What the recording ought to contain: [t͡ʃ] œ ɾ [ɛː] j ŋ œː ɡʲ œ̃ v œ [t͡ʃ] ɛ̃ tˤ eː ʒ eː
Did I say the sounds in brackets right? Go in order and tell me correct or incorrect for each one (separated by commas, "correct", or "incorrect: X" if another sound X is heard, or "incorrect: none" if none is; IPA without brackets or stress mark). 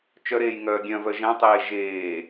correct, incorrect: eː, incorrect: ʒ